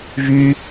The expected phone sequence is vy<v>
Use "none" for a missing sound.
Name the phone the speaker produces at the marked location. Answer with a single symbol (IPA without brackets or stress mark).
none